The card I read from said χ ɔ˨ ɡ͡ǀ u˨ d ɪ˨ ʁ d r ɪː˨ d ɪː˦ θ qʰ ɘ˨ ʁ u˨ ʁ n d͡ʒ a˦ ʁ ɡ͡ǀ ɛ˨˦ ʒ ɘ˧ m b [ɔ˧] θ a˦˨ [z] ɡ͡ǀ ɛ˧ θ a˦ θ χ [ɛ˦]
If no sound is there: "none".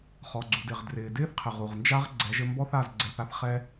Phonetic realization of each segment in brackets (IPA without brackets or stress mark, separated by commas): ɔ˦, z, ɛ˦